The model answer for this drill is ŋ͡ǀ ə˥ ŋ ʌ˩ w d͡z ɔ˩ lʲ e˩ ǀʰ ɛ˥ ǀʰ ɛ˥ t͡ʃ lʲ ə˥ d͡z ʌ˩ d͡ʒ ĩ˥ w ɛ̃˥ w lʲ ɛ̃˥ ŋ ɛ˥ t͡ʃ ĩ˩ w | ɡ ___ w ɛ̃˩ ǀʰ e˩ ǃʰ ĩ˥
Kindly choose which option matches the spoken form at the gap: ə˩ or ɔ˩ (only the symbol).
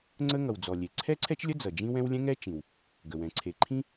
ə˩